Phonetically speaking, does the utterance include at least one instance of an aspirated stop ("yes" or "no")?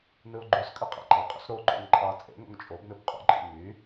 no